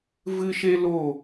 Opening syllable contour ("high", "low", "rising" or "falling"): high